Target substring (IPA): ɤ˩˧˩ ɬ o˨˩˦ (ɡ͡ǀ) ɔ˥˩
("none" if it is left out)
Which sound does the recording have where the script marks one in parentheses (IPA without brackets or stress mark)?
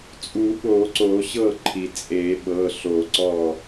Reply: ǀ